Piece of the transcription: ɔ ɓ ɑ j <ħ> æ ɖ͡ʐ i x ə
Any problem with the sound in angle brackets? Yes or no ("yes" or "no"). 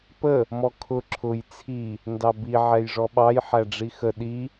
no